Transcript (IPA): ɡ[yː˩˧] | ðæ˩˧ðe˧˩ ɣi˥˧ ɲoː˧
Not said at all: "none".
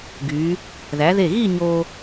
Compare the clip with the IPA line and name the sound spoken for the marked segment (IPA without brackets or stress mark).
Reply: yː˩˧